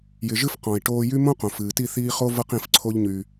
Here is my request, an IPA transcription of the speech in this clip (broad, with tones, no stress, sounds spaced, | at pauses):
j ɪ˨ ʒ ɨ˧ f q ɔ̃˨ i̯ ʈ oː˧ j y˦ m õ˦ q õ˨ f ɨː˨ t i˦˨ θ iː˧ χ o˦ v ɤ˦ q ĩ˧ f ǀʰ o˦ ʎ ɲ y˧